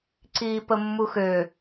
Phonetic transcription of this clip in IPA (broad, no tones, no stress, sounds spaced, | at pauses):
ǀ iː p ə mː u x ø